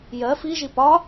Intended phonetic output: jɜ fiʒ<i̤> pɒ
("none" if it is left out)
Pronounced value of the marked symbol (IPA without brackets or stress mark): i